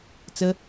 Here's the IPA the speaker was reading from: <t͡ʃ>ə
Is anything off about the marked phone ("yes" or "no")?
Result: yes